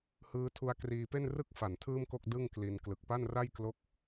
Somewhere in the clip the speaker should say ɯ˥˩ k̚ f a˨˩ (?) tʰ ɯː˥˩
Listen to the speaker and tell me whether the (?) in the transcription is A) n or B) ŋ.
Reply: A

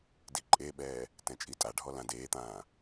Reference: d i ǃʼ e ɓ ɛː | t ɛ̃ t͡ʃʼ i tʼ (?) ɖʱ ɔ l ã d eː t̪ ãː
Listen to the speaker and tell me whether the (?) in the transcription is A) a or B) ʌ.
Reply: A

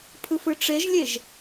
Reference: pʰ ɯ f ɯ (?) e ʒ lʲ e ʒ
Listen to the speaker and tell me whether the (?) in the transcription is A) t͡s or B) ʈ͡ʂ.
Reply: B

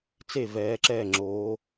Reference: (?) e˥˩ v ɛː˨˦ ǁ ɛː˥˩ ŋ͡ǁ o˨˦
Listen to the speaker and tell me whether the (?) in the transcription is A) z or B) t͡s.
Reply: B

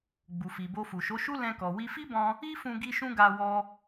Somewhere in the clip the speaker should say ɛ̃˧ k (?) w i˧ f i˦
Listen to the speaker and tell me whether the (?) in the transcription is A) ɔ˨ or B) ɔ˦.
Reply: A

